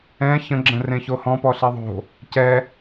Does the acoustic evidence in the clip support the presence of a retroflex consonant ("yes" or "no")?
no